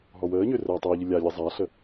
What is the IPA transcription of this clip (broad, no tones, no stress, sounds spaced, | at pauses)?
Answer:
ɦ ɔ w əː ɲ ø r əː tˤ əː ʎ ɯ lʲ a lʲ ɯ zˤ a ɬ ə